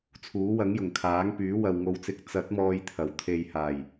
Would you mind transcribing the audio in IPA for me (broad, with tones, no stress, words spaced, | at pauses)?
t͡sʰuː˨˥wɐ˨˥ŋjʊ˨˩ŋ kʰaː˨˥ŋpyː˨˥ wɐ˨wŋo˧wt͡sɪ˧k̚ t͡sɐ˨˥t̚mɔː˨j t̪ʰɐ˨˩wt̪ʰe˨jhaː˨˩j